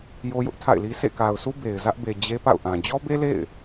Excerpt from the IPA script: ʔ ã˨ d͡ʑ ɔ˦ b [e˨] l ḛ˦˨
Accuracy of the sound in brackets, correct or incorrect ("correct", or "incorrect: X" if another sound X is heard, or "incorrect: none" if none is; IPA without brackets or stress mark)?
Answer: incorrect: e˦